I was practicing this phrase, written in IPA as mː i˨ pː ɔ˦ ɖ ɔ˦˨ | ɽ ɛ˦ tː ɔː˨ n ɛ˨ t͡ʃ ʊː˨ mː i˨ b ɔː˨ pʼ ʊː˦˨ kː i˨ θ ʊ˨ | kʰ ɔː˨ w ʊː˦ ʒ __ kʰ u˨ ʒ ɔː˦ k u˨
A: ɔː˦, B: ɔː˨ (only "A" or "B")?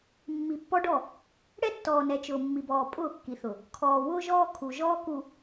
A